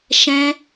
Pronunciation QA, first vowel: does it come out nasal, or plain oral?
nasal